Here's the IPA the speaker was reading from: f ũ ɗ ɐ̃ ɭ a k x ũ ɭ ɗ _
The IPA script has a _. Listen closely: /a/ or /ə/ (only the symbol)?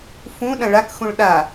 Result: a